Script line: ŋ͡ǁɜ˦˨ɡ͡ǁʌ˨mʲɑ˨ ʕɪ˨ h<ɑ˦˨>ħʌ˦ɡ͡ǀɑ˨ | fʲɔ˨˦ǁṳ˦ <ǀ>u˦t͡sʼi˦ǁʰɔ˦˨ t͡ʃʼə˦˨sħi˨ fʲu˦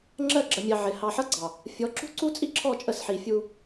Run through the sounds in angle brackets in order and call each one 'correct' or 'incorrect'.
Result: incorrect, correct

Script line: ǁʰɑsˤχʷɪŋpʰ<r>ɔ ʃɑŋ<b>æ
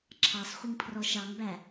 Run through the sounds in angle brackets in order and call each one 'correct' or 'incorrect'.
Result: correct, correct

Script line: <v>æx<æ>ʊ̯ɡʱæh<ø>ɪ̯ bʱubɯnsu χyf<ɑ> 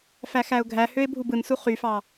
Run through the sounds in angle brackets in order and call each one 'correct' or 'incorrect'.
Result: incorrect, correct, correct, correct

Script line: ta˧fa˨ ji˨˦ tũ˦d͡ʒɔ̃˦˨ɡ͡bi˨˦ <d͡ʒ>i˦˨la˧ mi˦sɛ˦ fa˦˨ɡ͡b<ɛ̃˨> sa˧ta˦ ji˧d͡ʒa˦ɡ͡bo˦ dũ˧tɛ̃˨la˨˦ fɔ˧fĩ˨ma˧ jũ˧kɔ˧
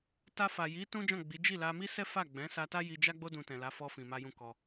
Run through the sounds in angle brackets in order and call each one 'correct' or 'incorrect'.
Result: correct, incorrect

